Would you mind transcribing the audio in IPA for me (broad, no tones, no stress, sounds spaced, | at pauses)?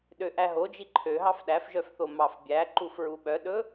ɗ ø ʔ æ ɦ o d͡ʒ i ǃʰ ø ɦ ɑ f ɗ æ f ʒ œ f θ o m ɑ f bʲ æ ǃ u f ɹ u ɓ œ ɗ ɵ